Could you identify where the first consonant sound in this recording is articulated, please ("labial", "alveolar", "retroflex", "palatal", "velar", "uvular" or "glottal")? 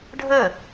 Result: retroflex